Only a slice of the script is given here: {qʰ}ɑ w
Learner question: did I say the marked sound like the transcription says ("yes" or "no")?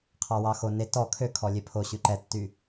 yes